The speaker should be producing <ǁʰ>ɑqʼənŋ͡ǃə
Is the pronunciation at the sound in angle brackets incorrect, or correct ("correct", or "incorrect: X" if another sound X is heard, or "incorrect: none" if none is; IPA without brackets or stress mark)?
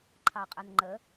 incorrect: ǃʰ